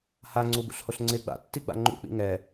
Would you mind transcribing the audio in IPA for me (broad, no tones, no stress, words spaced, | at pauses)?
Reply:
haŋ͡ǀubṵɬhoɬ ŋ͡ǀɪ ɡ͡ba̰tːiɡ͡ba̰ ŋ͡ǃṵk͡pḭ ŋɛ